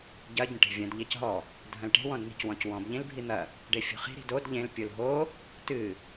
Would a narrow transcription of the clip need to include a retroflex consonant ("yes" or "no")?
yes